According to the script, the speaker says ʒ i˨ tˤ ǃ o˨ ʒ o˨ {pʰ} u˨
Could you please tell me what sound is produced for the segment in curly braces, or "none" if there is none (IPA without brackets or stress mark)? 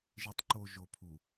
pʰ